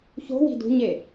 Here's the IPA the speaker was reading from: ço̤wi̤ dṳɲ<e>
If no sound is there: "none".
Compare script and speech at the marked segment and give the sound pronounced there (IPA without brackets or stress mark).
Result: e